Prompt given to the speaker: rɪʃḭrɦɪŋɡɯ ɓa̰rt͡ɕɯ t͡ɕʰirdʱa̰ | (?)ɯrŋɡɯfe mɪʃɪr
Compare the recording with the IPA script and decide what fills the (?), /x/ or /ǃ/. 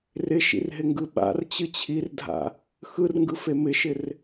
x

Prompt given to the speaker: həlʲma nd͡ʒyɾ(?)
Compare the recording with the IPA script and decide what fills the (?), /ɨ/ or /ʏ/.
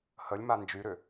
ʏ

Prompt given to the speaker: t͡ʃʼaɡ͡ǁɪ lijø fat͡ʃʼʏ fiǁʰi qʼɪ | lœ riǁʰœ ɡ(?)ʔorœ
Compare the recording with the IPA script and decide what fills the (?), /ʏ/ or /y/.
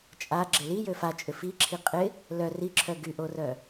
y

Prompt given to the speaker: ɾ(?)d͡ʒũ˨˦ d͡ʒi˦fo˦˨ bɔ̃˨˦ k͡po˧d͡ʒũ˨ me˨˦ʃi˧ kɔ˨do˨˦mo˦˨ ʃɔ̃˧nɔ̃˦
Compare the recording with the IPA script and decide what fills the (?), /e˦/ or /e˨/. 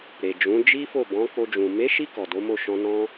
e˨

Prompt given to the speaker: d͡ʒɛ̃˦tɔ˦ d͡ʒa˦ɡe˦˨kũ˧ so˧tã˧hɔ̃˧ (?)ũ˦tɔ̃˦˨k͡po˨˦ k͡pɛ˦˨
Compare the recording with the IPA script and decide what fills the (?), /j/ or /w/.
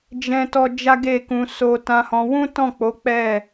w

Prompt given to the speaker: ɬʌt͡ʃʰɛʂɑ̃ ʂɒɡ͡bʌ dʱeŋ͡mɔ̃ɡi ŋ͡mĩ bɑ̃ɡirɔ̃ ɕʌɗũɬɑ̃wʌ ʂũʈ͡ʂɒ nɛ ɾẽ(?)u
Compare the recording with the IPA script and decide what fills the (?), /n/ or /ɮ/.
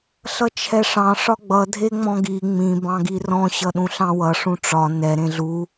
ɮ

